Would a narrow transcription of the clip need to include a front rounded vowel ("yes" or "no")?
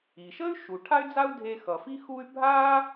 yes